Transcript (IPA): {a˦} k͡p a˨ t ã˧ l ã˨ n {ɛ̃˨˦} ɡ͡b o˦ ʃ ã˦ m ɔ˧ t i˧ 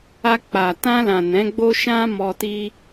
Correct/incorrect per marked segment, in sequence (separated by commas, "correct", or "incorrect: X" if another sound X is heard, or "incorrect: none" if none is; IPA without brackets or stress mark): incorrect: a˧, correct